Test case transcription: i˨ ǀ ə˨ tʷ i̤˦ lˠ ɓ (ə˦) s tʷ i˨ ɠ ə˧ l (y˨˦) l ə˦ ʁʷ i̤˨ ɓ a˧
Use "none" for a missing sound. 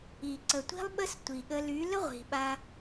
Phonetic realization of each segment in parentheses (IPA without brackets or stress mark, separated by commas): ə˦, y˨˦